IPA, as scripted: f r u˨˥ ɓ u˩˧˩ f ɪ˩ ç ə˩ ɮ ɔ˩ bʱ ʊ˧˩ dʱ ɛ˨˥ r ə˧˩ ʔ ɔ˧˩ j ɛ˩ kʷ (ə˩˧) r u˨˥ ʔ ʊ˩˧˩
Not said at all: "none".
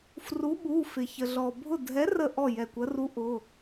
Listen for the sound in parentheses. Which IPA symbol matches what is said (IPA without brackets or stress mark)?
ə˩˧